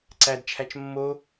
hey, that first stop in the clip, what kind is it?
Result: click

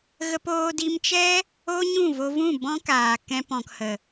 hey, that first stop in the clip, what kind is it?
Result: plain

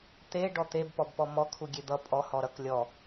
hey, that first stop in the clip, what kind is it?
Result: plain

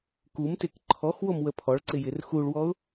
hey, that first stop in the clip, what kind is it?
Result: plain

